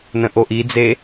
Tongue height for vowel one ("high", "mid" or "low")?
mid